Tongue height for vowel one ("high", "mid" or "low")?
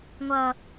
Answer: mid